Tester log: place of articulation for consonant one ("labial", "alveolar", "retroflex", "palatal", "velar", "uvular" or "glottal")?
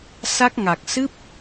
alveolar